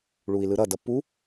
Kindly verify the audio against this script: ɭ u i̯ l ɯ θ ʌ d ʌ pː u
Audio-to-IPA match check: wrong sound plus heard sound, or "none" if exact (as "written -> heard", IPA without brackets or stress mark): θ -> ɾ